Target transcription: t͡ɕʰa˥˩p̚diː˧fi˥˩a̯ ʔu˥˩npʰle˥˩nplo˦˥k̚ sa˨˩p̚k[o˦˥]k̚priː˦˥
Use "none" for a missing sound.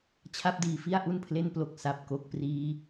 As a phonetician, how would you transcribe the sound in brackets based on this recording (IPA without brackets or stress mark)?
o˦˥